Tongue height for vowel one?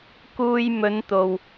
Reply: high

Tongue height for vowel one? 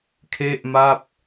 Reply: mid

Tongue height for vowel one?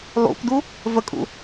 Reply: high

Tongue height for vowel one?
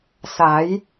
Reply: low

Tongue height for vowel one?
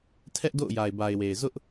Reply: mid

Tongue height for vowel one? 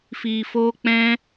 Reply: high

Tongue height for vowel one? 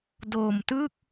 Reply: mid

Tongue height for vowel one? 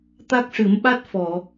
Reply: low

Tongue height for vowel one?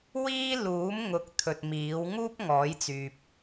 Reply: high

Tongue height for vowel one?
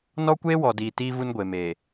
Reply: mid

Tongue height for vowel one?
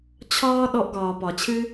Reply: low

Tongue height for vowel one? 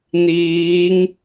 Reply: high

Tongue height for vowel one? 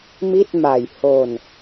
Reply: high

